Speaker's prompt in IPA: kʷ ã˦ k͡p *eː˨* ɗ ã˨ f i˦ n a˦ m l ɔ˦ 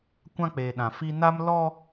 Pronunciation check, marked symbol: correct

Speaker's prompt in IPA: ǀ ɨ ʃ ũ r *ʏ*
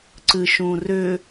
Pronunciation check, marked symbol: correct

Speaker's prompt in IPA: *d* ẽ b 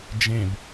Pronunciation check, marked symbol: incorrect: d͡ʒ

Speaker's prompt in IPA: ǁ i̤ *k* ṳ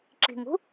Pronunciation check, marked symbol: incorrect: ŋ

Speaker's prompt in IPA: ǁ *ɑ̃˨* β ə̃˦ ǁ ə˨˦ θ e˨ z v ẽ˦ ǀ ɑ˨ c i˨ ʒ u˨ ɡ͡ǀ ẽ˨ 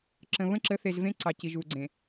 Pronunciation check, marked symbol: incorrect: ə̃˨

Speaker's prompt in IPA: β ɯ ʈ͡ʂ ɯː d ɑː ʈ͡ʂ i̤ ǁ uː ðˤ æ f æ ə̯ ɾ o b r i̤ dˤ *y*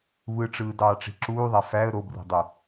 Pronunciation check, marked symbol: correct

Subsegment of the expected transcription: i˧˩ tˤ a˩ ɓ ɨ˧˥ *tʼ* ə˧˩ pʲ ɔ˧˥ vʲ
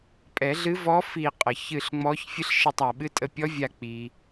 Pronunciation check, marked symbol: correct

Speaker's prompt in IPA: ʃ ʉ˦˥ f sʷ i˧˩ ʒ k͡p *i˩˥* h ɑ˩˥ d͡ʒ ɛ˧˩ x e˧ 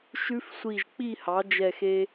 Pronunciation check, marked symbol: incorrect: i˥˨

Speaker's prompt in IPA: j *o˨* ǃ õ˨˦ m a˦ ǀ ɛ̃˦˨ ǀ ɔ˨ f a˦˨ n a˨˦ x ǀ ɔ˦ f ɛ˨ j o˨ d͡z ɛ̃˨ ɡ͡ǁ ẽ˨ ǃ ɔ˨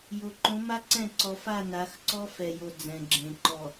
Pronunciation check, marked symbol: correct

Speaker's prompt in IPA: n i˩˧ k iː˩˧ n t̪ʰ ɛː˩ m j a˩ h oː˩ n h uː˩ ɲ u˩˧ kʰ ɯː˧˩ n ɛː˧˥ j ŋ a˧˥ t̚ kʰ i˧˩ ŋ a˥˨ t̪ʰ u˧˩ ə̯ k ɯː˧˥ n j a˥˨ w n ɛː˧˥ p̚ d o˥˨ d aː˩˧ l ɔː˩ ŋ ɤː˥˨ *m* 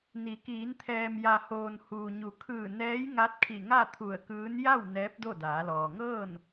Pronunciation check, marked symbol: incorrect: n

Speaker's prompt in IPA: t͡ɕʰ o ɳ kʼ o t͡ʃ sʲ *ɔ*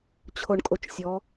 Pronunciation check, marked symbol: correct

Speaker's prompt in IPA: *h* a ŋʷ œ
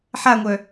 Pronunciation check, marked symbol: incorrect: ħ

